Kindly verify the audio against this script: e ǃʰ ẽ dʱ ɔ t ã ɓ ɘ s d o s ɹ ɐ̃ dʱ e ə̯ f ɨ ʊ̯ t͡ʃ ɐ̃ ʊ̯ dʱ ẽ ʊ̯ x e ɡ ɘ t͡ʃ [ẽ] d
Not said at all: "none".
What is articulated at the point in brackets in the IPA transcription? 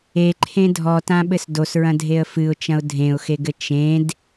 ẽ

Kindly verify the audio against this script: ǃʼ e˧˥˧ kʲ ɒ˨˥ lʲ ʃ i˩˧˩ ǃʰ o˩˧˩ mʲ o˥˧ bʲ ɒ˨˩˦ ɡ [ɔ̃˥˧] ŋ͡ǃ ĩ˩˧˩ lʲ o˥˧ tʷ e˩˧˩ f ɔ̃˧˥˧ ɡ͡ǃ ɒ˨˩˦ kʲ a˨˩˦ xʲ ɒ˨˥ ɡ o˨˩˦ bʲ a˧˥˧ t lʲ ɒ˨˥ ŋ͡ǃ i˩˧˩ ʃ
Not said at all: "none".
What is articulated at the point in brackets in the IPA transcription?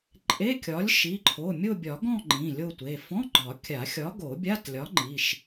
ɔ̃˥˧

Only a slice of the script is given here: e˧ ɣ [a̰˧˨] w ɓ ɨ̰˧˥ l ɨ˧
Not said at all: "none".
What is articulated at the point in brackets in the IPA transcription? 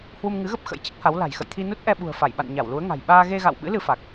a̰˧˨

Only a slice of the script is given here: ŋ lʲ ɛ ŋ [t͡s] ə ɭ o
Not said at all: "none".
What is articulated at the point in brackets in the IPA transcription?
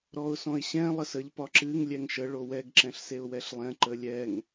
ʃ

